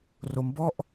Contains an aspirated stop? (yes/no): no